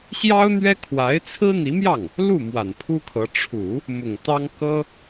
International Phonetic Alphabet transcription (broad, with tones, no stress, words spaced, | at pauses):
ɕjɑ˥ʊ̯n̪ɥɛ˥kʰwa˧˥ɪ̯ t͡sʰɹ̩˥n̪i˧˥mjɑ˥˩ŋ | lu˥˩ mwa˨˩npʰu˥kʰɤ˧˥ ʈ͡ʂʰu˨˩˦ | mʊ˨˩ŋt̪ɑ˥ŋ kɤ˥